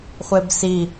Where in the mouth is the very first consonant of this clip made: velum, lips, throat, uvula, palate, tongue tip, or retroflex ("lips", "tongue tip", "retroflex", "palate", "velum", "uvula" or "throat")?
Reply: uvula